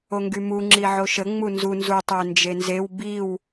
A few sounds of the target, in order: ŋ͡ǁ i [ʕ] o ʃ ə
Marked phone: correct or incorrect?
correct